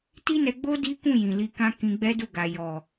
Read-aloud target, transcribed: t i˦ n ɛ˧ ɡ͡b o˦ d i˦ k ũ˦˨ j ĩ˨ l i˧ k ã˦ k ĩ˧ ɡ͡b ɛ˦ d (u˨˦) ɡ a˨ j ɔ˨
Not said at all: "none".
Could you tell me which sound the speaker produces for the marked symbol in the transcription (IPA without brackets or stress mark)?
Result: u˦˨